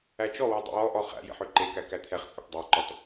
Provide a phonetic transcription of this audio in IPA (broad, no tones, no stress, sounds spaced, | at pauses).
æ t͡ʃ ɔ w ɔ dˤ ɛ̰ w ɔ ʔ ɔ χ æ̰ j ḛ ħ ø ǃ e k æ k æ t̪ʰ ɛ χ t͡sʼ ɛ ʈ dˤ æ ǃ ɔ t